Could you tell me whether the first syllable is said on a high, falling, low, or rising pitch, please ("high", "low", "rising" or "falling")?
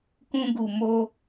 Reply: high